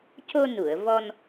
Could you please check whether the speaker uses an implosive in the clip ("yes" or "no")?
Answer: no